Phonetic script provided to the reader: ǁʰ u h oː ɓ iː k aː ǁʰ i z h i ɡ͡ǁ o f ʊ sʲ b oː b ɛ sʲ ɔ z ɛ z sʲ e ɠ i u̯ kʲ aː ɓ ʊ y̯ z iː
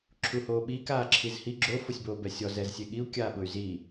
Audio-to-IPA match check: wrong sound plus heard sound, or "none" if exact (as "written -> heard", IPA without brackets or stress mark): none